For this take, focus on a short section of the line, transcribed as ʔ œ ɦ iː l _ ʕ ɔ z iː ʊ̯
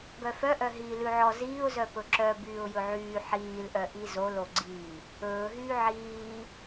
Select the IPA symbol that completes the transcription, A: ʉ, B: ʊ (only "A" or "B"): A